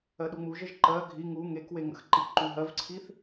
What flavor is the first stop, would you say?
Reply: implosive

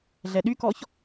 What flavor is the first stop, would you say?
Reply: implosive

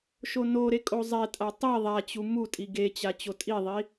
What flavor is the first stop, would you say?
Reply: ejective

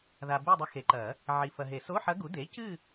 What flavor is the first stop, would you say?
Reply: plain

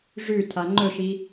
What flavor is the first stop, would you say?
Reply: aspirated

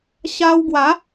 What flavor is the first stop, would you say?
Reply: plain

